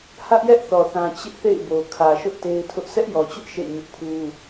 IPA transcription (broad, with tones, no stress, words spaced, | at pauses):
hä˦ʔjɛ˦ʔθɔ˨θã˨ t͡ɕɪ˦ʔθḛ˦˨ɪ̯bo˨ kʰä˨ʃʊ˦ʔ te˦ɪ̯tʰʊ˦ʔ sʰɛ˦ʔjɔ˨t͡ɕʊ˦ʔ ʃḛ˦˨ɲʊ˦ʔpʰu˦